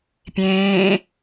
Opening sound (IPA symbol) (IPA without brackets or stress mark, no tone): pʲ